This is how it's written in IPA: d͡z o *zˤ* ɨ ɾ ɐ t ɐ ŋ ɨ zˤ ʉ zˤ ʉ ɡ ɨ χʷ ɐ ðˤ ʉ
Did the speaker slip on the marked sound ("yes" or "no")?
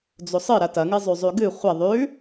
yes